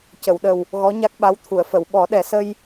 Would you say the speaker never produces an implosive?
no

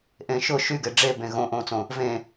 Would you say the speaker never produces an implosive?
yes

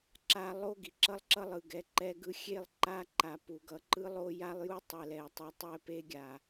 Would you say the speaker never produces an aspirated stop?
yes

